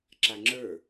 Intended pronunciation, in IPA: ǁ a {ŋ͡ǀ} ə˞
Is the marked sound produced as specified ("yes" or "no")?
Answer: no